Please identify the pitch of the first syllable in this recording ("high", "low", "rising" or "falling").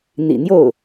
low